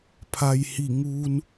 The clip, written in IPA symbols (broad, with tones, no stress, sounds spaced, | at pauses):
pʰ a˩ j h i˧˩ ŋ uː˧ n